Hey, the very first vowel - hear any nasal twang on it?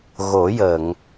no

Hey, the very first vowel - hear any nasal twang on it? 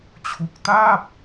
no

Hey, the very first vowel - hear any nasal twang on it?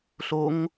no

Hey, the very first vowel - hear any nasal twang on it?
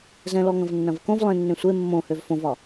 yes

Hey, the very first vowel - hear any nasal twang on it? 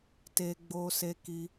no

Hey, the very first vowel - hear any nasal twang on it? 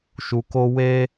no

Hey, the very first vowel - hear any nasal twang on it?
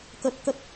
no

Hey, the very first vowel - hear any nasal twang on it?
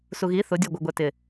no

